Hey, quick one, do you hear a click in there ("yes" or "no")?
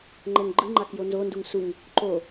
yes